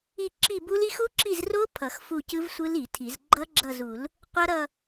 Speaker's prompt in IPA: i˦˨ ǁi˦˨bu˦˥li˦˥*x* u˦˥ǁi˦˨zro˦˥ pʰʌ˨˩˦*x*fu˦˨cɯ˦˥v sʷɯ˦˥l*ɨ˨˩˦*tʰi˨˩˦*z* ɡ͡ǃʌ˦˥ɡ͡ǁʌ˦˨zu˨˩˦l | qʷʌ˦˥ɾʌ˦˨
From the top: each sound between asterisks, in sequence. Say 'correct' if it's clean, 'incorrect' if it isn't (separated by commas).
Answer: correct, correct, incorrect, correct